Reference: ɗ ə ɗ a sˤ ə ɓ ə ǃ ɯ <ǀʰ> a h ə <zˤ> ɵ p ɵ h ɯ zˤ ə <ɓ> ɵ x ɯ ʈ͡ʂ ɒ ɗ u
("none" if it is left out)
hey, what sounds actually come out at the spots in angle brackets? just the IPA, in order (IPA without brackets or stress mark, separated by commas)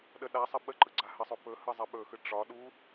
ɡ͡ǀ, sˤ, ɓ